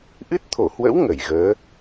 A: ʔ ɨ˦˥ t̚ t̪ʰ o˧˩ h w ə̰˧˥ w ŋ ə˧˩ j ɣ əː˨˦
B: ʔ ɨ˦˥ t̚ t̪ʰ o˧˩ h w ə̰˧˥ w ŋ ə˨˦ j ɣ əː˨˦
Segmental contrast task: A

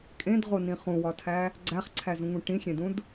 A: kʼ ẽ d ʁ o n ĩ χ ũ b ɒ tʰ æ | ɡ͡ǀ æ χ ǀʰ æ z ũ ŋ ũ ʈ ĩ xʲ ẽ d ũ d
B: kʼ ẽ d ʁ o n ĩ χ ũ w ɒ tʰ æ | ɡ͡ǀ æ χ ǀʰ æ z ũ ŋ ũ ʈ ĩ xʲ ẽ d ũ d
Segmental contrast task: B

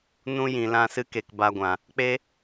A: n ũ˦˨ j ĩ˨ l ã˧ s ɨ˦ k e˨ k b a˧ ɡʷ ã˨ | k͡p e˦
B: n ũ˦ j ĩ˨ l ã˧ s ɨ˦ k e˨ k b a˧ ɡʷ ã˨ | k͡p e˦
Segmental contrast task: B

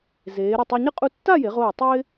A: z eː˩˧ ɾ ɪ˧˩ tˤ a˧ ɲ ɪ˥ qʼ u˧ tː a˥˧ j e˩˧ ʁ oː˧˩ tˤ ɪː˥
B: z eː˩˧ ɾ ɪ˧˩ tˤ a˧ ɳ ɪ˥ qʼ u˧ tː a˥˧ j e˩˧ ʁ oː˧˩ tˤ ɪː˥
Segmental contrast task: A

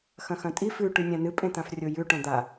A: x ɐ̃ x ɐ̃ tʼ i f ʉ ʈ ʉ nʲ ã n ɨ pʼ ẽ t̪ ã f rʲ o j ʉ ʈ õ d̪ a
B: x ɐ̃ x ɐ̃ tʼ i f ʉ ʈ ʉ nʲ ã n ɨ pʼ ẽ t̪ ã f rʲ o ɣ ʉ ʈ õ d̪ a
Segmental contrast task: A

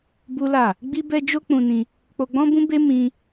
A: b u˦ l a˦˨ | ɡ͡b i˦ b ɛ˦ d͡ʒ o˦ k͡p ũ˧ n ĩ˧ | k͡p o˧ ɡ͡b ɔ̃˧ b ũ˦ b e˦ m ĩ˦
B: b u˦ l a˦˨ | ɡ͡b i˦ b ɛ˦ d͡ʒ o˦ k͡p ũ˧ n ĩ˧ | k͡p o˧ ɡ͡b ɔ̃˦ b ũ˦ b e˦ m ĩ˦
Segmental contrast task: B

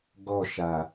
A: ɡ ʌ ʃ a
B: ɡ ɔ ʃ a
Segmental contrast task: B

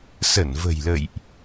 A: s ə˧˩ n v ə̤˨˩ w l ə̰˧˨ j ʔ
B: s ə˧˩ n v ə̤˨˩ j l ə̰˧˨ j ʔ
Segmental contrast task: B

